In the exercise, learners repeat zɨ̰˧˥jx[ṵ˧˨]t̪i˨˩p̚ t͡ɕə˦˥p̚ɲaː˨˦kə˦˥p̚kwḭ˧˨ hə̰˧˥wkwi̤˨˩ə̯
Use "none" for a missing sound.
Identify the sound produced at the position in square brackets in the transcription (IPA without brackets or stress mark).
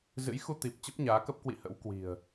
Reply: u˧